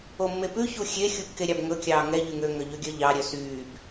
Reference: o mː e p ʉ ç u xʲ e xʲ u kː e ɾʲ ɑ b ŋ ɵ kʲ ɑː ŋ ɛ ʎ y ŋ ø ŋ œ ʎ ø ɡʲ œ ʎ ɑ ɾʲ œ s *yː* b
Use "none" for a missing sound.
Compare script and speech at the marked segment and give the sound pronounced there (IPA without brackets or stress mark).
yː